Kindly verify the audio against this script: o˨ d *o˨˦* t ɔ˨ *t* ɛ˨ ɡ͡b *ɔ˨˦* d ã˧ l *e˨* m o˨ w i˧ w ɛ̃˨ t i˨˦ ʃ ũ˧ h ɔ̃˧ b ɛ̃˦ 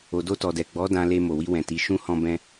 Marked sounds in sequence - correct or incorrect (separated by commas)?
incorrect, incorrect, correct, incorrect